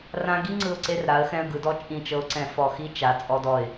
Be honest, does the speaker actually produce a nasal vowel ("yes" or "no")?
yes